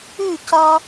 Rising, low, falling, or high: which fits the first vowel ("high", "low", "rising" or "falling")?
falling